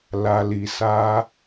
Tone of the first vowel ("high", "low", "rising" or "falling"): low